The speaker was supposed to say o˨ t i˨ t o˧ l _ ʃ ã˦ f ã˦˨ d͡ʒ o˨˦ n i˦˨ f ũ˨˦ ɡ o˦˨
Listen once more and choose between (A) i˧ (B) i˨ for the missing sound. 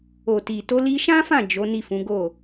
A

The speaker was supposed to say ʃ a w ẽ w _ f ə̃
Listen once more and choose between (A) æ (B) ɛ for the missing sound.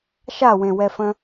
B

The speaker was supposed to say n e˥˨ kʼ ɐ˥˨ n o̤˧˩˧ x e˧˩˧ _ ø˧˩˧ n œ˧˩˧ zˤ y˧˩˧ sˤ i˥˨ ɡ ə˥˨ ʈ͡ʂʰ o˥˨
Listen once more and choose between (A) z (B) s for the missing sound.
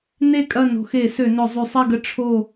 B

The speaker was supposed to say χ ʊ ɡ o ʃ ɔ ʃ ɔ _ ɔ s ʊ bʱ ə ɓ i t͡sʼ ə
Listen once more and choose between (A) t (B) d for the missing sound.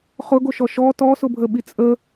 A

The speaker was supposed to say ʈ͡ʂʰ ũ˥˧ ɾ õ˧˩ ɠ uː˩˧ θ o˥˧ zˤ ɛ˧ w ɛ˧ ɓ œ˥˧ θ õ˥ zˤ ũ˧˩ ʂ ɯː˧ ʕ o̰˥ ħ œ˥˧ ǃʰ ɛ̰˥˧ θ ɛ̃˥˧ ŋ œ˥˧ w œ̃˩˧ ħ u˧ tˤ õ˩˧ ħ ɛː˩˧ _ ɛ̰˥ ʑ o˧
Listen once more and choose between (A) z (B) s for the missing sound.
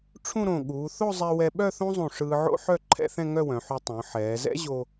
A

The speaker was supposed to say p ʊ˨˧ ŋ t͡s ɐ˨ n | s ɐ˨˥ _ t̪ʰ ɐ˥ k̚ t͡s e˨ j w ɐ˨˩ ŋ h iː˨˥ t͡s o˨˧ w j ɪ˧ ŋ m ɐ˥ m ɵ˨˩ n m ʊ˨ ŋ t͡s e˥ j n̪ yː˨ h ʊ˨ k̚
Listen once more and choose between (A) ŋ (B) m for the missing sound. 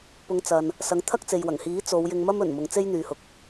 A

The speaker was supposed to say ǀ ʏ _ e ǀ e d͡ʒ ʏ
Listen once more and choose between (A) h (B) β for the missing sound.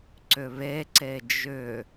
B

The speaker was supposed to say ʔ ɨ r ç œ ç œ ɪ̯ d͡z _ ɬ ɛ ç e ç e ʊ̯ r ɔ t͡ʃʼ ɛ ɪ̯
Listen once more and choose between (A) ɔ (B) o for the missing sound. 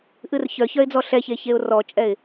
A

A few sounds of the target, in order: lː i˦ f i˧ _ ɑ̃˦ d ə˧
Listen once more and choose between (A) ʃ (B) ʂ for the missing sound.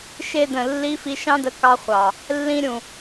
A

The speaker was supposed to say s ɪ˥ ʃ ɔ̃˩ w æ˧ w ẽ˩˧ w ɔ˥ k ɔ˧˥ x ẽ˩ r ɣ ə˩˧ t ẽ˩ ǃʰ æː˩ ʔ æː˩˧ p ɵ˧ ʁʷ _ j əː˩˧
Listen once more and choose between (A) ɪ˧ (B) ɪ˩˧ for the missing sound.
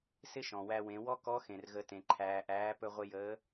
A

